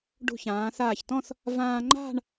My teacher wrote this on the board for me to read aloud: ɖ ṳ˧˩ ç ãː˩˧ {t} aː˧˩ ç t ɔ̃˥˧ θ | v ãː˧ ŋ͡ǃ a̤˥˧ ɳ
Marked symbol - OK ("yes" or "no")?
no